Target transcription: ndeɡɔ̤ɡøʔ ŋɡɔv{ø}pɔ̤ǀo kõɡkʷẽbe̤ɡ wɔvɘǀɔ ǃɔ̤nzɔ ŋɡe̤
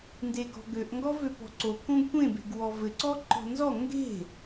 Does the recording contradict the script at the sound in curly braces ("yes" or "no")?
no